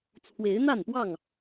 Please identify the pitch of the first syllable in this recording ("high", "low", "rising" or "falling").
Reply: rising